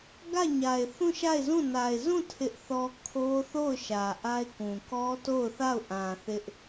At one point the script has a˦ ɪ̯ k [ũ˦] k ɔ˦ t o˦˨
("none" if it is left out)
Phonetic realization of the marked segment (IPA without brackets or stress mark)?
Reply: ũ˨